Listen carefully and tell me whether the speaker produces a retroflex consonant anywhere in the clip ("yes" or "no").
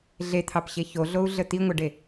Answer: yes